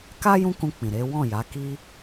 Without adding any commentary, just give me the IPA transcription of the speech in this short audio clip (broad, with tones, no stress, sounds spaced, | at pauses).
k a˦ j ũ˦ k ũ˧ k͡p ĩ˨ ɾ e˨˦ w ɔ̃˦˨ j a˨˦ k i˦